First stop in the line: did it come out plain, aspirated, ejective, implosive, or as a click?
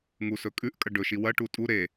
ejective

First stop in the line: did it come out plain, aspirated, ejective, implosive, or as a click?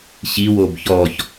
plain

